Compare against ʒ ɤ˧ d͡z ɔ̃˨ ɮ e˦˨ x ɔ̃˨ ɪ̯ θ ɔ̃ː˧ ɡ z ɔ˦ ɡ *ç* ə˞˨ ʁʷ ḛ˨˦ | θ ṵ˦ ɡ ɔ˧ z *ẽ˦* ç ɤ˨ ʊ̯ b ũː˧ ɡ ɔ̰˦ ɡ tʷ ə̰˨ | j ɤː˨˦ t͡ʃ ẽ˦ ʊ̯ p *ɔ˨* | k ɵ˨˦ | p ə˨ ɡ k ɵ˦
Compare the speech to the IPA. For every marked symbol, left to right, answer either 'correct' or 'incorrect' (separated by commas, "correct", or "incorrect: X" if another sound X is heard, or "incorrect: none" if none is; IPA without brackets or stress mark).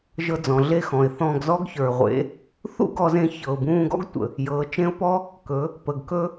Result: correct, incorrect: ẽ˧, incorrect: ɔ˦